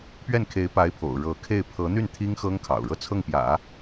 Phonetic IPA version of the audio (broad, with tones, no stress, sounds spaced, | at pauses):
p ɥ ɛ˥˩ n kʰ e˧˥ ɪ̯ p a˧˥ ɪ̯ pʰ o̰˨˩ ʊ̯ ɻ ɤ˧˥ kʰ e˥˩ ɪ̯ pʰ ɤ˧˥ n̪ y˥˩ n t̪ʰ i˥ ŋ x ɤ˥ ŋ kʰ ɑ̰˨˩ ʊ̯ ɻ ɤ˥˧ t͡sʰ ɤ˥˩ ŋ p j ä̰˨˩˦